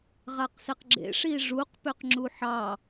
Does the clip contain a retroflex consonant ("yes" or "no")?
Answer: yes